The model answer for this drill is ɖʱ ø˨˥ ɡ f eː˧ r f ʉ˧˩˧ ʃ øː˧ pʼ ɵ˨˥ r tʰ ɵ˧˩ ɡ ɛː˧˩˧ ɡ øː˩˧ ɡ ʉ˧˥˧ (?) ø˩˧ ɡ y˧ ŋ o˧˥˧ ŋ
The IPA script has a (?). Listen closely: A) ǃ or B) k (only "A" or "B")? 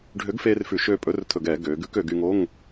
B